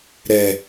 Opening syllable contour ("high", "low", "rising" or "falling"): low